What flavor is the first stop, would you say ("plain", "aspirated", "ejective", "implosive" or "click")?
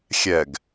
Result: plain